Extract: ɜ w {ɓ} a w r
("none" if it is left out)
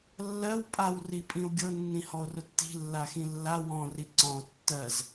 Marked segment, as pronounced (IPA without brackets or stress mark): pʼ